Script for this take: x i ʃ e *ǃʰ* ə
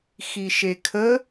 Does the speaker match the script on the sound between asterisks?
no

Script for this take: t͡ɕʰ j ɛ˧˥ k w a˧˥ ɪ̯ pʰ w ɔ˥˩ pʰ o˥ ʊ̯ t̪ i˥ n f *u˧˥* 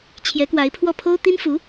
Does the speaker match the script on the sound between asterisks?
yes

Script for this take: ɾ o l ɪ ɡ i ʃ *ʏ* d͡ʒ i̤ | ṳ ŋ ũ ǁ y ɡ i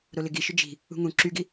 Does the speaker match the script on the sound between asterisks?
yes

